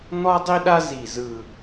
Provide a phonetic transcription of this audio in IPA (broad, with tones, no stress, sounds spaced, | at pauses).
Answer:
n̪ ɔ˥ dˤ i˥ ɗ a˥ z i˧˩ z ɯ˧˩